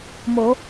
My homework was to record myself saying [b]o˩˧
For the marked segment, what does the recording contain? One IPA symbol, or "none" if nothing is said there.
m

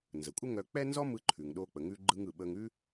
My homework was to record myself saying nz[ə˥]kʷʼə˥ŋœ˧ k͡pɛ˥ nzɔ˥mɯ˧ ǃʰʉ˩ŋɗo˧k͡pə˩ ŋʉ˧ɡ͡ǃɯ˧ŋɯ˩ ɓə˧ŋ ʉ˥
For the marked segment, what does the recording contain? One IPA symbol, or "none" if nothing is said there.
ə˩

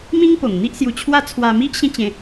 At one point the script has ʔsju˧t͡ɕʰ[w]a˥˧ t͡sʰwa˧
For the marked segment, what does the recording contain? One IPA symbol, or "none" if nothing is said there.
w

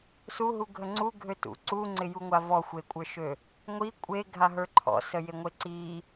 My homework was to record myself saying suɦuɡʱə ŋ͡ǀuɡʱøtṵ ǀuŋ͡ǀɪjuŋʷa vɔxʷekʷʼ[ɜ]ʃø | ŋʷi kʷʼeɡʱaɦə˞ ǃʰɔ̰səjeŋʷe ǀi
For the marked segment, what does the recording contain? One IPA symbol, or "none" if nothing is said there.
ə˞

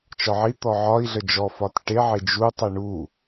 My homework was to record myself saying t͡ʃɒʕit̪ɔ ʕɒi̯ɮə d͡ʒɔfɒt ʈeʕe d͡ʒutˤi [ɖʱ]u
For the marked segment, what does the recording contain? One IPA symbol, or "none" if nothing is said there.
ɳ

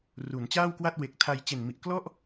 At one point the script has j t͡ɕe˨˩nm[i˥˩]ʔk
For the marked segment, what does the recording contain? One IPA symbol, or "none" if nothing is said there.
i˨˩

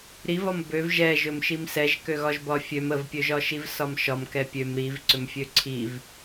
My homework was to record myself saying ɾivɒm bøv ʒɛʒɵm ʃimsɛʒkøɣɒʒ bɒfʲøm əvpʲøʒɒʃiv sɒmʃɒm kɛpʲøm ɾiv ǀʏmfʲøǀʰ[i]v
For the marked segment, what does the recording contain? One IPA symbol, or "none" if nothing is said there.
i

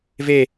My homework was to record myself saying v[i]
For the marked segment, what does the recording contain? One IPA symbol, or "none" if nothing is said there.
e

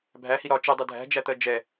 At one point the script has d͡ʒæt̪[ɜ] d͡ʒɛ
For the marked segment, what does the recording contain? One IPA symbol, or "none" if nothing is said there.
ɜ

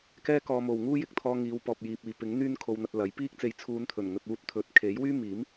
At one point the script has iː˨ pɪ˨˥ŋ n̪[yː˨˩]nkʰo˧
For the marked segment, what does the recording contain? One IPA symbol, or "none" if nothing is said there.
yː˥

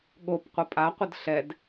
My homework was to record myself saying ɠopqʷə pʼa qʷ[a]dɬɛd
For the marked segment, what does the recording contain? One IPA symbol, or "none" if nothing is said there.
ə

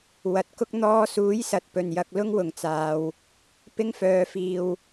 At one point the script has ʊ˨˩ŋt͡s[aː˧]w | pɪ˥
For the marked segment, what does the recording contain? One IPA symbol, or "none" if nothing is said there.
aː˨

